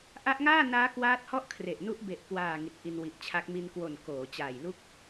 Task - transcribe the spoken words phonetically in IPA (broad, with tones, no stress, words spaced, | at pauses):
ʔa˦˥ʔŋaː˥˩naː˦˥ kwaː˦˥t̚hɔ˥˩ʔkʰre˨˩ʔ nu˦˥ʔbe˨˩ʔkwaː˨˩ ŋi˨˩t̚ʔi˧nwi˨˩ʔt͡ɕʰa˦˥k̚ mi˧n kwo˨˩n koː˩˦t͡ɕaː˨˩jlu˥˩k̚